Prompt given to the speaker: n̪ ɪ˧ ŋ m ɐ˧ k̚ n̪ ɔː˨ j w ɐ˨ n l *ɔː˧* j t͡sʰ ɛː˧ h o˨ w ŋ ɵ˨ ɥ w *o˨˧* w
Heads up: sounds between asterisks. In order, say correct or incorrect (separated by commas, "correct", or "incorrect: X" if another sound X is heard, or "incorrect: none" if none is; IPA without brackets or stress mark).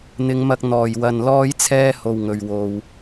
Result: correct, incorrect: o˧